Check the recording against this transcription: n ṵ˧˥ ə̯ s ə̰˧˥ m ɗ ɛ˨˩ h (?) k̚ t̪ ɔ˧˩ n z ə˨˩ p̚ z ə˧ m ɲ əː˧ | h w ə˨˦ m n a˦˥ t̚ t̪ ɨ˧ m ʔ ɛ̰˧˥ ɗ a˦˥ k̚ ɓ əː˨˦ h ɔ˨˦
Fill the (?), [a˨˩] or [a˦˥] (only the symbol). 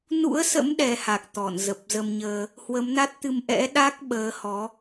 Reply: a˨˩